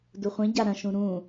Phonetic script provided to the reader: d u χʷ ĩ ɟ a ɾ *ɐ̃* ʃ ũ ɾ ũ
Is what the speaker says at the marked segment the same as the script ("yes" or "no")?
yes